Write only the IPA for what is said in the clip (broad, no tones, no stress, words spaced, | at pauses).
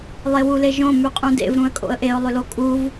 lˠewuleʒõ mʉqʼũdḛv ɾũə̯kʼo̰ə̯ʔeʊ̯ lˠʏlokʼuv